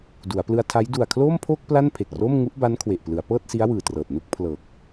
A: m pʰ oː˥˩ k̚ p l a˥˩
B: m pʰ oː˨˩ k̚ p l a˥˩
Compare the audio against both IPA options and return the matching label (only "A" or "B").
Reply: A